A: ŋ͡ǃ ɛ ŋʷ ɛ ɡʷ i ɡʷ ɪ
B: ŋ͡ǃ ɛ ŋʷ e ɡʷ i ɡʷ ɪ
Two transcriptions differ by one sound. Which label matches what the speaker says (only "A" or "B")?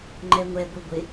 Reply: A